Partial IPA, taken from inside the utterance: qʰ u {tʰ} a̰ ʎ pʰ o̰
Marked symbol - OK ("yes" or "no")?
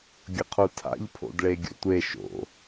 yes